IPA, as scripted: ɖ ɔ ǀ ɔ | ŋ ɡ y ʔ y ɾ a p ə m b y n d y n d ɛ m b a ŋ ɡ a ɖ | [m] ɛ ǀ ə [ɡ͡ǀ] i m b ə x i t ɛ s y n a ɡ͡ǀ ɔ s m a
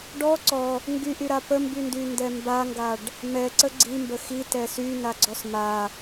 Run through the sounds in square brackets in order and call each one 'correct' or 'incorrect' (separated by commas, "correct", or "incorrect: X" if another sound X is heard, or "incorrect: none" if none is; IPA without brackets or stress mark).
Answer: correct, correct